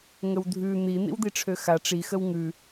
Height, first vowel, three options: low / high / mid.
mid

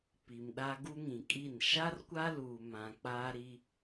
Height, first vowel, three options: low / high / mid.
high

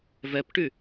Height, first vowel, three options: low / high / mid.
mid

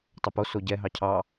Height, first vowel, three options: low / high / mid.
mid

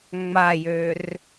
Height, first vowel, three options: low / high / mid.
low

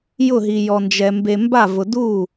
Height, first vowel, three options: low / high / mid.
high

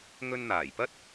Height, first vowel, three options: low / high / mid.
mid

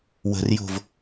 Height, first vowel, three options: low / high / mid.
mid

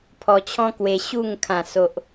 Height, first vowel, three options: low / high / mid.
mid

